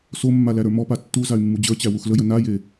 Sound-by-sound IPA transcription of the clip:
somːa læɾə˞mɔpa tːu zay̯mːud͡ʑə˞t͡ɕæ wuxləjə naje

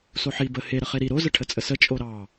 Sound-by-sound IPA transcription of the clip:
soħi bə he ɾəχeɾi ɾo zəʈʰət͡sʼəsə t͡ʃʼoɾɑ

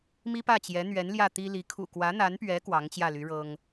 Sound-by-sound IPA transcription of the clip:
mi˥pä˥˩t͡ɕjɛ˧˥ n̪ɥɛ˧˥n ljä˥˩t̪i˥li˧˥ kʰṵ˨˩kwä˧˥n̪a˧˥npɥɛ˧˥ kwɑ˧˥ŋt͡ɕjä˥˩ly˧˥ ɻɤ˥ŋ

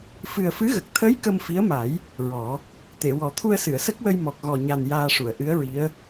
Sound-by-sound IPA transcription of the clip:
fɨ˨˩ə̯fɨ˧˥ɣə˨˩k̚ t̪ʰə˧˥j kə˧mfi˧˥ə̯ma˨˩˦j | ɹɔ˨˩˦ | t̪e˨˩˨wɔ˨˩˦ t̪ʰu˧ə̯sɨ˨˩˨ə̯sə˦˥k̚wə˧j mɔ˨˩k̚ ɣɔ˨˩ɲa˨˩n jaː˧ʂu˨˩˨ə̯ ʔɨ˧˥ə̯ɹi˧˥ə̯

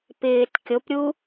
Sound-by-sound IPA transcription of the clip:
pɪːt kʲopɾʲu

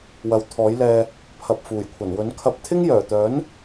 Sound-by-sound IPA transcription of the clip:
wɐ˨˧wt̪ʰɔː˨˥jlɛː˧ | pʰɐ˨p̚ fuː˨˩jkʷʰɐ˨˩nwɵ˨˥nkʰɐ˧p̚ t̪ʰɪ˥ŋjœː˨˩t̪œː˨˥n

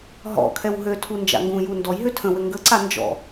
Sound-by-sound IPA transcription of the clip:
ɦɔ̰kʰɛw ɦøtʰu nd͡ʒa̰ŋɡũju ndɔjɦø tʰə̃ wɘŋɡəǀa nd͡ʒɔ̰

